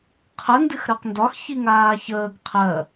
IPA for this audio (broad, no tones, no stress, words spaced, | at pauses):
qʰə ndɨxɾɜqndɒx çiŋaːçəːɡ qʰɜ